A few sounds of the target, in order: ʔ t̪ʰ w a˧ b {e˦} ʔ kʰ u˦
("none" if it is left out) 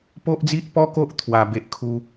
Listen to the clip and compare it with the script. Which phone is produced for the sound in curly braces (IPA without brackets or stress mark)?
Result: e˦